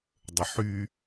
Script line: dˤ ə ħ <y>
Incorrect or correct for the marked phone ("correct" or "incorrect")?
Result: correct